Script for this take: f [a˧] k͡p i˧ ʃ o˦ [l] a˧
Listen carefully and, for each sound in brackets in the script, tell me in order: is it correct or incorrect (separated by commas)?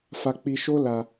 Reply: correct, correct